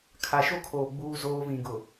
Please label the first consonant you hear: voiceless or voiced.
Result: voiceless